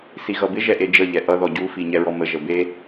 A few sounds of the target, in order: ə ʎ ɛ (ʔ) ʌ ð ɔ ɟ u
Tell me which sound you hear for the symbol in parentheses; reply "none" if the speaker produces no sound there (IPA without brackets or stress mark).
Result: ʔ